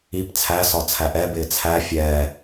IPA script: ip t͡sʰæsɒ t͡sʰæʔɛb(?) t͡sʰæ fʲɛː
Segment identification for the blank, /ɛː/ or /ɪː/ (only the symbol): ɪː